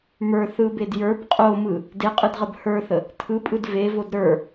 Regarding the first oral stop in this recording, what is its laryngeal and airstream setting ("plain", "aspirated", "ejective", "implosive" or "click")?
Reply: plain